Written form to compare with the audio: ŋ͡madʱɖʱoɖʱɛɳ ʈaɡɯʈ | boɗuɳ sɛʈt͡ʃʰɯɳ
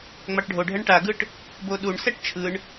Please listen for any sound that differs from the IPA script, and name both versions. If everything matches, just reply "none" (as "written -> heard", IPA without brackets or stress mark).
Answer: dʱ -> ʈ